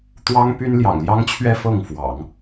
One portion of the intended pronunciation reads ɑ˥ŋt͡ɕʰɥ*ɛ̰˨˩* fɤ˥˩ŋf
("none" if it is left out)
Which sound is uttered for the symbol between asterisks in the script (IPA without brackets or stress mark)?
ɛ˥